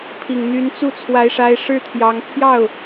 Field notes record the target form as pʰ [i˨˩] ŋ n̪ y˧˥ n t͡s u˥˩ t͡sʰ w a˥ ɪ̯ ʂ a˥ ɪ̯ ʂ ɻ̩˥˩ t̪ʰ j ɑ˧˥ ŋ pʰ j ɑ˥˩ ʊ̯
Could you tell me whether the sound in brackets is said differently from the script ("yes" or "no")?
no